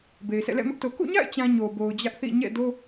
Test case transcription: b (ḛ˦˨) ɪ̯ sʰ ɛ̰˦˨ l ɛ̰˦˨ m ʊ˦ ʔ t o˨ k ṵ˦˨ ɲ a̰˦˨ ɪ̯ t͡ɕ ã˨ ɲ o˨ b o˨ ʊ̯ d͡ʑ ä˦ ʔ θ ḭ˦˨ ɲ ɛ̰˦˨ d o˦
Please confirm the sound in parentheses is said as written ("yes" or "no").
no